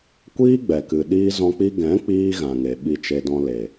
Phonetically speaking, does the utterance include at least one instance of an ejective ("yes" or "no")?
no